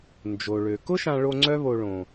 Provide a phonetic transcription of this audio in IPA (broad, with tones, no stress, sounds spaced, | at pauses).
n d͡ʒ o˨ ɭ ø˨ k ʊ˦ ʃ ã˧ ɭ o˧ ŋ͡ǀ œ˦ β o˧ ɭ õ˨